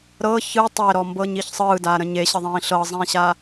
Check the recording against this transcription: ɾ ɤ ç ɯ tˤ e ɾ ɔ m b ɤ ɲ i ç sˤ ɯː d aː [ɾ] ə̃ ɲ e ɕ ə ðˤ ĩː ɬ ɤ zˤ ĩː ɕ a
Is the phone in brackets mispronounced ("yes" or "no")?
no